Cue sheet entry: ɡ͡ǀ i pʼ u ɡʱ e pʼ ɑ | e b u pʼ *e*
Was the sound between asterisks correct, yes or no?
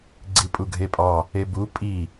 no